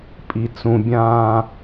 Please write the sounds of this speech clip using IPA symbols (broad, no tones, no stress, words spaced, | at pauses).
pʼit͡sũbʲãː